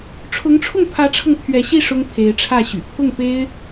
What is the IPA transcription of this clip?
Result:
ʈ͡ʂʰ ʊ˧˥ ŋ ʈ͡ʂʰ ʊ˥˩ ŋ pʰ ä˧˥ ʈ͡ʂʰ ɤ˧ ŋ t̪ʰ ɥ ɛ˧˥ ɕ i˥˩ ʂ ʊ˥ ŋ pʰ e˧˥ ɪ̯ ʈ͡ʂʰ ä˥˩ ɕ y̰˨˩ pʰ ʊ˥˩ ŋ p e˥ ɪ̯

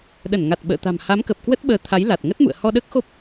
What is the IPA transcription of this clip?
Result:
ɗ ə˧˩ n ŋ a˨˩ t̚ ɓ ə̰ː˧˨ t̪ a̤˨˩ m h a˨˦ m k ə˨˩ p̚ k w ə˦˥ t̚ ɓ əː˨˦ t̪ʰ a˨˦ j l a˨˩ t̚ ŋ ə˦˥ t̚ m ṵ˧˨ ə̯ h ɔ˧ ɗ əː˦˥ k̚ x o˦˥ p̚

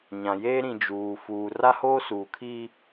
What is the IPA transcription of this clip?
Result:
ɲ ã˨ j eː˦ ɾ ĩ˨ d͡ʒ uː˨ f uː˨ r a˦ h oː˦ s uː˨ kʰ iː˦

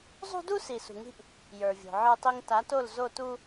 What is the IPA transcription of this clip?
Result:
zˤ ṳ˦ d u˦ s i˨ s ṳ˨ ŋ i̤˦ ʔ | j ə˞˨ vʲ o̤˨ ʕ ə˞˦ tˤ i˦ ŋ t a˨˦ t o˦˨ l z o˦˨ t u˦

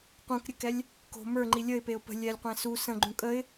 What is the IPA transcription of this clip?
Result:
q ũ k ɾʲ ə k ɛ lʲ | k o̤ m ə˞ ŋ͡ǃ i lʲ ə ɪ̯ p e ʊ̯ p ə̤ lʲ ɛ lʲ qʷ ɛ̃ s u s ə̃ ɡ͡ǃ ũ kʼ ə ɪ̯

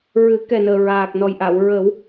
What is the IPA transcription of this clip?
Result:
ɹ ɨ˨˩˦ k ɛ˨˩ n əː˨˩ ɹ aː˨˩ k̚ n ɔ˨˩ j ʔ a˨˩˨ w ɹ ə˨˩˦ w

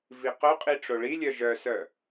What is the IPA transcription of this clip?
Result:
v i q œ qʼ i ʈ͡ʂ o ɭ i lʲ œ ʒ œ s œ

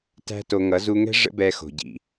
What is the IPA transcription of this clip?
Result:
t æ̤˦ t o˧ ŋ ʌ˨˦ z u˧ ŋ ɛ̤˦ ʐ ə̰˦ b ɛ˧ x o̤˨ ɟ ḭ˨

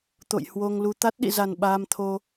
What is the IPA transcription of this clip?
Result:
t̪ o̰˧˨ j h w o˧ ŋ l u˧ t̪ a˦˥ t̚ ɗ ḭ˧˨ z a˨˩ n ɓ aː˧ m t̪ʰ o˧

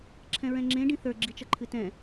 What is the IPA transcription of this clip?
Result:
ǁʰ ɛ̃ ɹ ɛ̃ ŋ͡ǁ ẽ ɖ ĩ θ ə˞ ɡ͡ǁ i t͡ʃ ʌ ǃʰ ɨ t ɛ̃

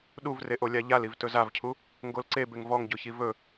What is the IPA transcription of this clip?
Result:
ɗ u v r e ʔ o lʲ a ʎ a l i v t ɵ z a v cʰ u | ŋ ɡ o l ǀ e b e ŋ v ɔ ŋ ɟ o ç i v ɵ

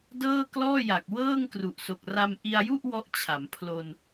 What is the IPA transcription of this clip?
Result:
d ɤː˥˩ k l ɔː˥˩ j a˨˩ k̚ w ɤː˥˩ ŋ k r u˨˩ ʔ s o˨˩ k̚ r a˧ m ʔ i˧ a̯ j u˥˩ ʔ w ɔ˦˥ ʔ t͡ɕʰ a˩˦ m pʰ l o˧ n

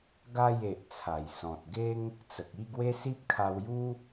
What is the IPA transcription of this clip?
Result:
ɡ a˥˧ j e˨ ʔ t͡sʰ a˨˩ j s ɔ̃˨ t̚ ɡ e˦ ŋ | t͡s ə˨ k̚ i˥˧ ɡ w e˦ s i˦ p̚ kʰ a˧ w j u˦

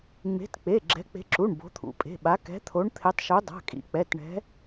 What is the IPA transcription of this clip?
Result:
ŋ͡m e̤˨˦ t k͡p e˩˧˩ ɡ͡ǁ ɛ̤˨˦ k͡p e̤˨˦ ǁ u˩˧˩ ɳ b o̤˨˦ t̪ʰ ṵ˩˧˩ pʼ e̤˩˧˩ ɓ a˨˦ k ɛ̤˨˦ t̪ʰ o˨˦ ɳ t̪ʰ e˨˦ tˤ ʃ u˨˦ dˤ a̤˩˧˩ kʼ ḭ˨˦ k͡p ɛ˩˧˩ t ɳ ɛ̤˨˦

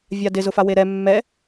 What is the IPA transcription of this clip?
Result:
vʲ a d ɪ z ʊ f a w e ɾ ɛ mː ɛ

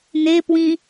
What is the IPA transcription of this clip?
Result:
n e p w ĩ

